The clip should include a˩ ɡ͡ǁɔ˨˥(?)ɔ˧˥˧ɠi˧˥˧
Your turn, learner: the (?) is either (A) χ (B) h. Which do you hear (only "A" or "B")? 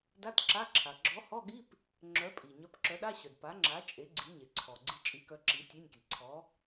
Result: B